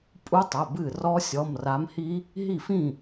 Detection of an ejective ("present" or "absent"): present